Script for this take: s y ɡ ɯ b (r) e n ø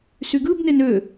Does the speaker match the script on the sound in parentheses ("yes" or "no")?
no